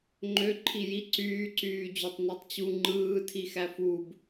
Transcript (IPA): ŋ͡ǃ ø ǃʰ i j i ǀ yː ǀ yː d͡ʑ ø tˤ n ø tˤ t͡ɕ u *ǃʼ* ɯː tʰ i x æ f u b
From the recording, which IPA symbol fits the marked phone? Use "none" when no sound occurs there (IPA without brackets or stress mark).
ŋ͡ǃ